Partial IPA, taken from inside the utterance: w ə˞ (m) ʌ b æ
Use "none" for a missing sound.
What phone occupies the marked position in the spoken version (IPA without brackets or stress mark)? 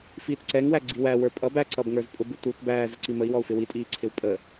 pʼ